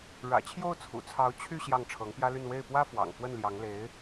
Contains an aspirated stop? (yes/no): yes